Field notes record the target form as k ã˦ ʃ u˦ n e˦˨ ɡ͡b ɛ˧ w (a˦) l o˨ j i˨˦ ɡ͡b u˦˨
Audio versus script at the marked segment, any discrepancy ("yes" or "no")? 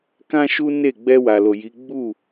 yes